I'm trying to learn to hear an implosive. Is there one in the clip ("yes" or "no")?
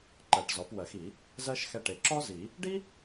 no